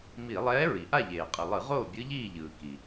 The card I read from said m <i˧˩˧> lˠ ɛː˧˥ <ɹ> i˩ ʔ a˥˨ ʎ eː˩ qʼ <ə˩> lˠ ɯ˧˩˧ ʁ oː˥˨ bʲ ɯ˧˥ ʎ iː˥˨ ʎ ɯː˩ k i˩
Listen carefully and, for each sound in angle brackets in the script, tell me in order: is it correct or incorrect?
correct, correct, incorrect: ɯ˩

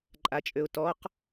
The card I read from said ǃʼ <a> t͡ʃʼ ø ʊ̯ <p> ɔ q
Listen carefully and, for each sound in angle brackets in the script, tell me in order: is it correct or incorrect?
correct, incorrect: t

